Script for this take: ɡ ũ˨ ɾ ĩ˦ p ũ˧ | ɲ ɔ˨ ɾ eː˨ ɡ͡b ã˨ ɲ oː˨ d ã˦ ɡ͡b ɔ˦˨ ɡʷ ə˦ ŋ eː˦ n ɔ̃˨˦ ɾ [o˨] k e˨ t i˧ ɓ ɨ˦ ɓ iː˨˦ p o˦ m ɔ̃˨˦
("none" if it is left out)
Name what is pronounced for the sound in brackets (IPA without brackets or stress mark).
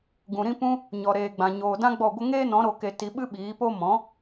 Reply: o˨